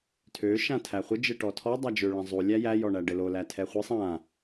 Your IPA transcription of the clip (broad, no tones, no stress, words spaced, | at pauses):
tʰø ʃãtʰæχʷɘ d͡ʒɘʈɔtʰɔ dˤæd͡ʒø ɭæ̃zˤu lʲæjæ jɔɳæɖɘlo lætʰɛχʷisˤ ã